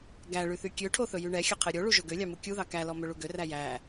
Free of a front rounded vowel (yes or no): no